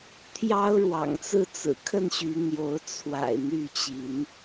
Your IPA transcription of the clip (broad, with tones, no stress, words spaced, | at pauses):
t̪ʰjɑ˦ʊ̯ɻwɑ̰˨˩ŋt͡sɹ̩˥˨t͡sɹ̩˨˩ kʰə˥˨nɕy˨˦n̪jo˨˦ʊ̯ t͡sʰwa̰˨˩ɪ̯ n̪y˥˨t͡ɕi˨˦n